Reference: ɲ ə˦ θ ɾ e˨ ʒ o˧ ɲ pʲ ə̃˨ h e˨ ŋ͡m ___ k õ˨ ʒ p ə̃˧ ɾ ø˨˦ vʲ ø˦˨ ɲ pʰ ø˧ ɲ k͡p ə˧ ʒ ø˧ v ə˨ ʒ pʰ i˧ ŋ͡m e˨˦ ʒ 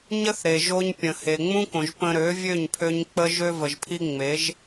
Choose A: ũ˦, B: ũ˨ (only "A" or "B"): A